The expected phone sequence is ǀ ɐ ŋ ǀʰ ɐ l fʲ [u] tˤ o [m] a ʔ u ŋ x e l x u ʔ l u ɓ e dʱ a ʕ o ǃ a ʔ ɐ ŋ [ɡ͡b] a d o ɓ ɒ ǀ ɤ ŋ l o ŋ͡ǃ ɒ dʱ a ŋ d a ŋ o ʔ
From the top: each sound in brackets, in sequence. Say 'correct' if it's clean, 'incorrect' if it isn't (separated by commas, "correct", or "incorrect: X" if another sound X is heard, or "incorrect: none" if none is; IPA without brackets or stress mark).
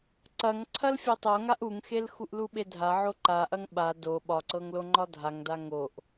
incorrect: o, incorrect: ŋ, incorrect: ɓ